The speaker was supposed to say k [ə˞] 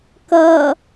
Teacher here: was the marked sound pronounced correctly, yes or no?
no